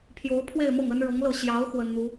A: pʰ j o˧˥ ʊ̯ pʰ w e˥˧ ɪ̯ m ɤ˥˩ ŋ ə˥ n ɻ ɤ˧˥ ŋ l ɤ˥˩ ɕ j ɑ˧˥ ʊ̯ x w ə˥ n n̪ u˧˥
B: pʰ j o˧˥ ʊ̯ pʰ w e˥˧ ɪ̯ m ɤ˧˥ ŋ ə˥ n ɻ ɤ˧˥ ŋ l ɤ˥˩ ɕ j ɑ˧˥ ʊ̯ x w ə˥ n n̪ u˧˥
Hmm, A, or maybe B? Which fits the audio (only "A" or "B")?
A